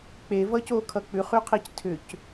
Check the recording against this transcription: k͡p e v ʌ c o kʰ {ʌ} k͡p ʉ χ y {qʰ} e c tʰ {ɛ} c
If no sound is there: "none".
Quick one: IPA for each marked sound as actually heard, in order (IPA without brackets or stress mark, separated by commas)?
ʌ, qʰ, ʏ